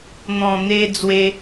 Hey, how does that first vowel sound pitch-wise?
low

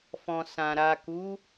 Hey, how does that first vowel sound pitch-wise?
low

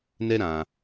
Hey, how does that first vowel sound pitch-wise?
high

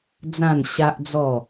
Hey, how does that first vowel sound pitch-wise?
falling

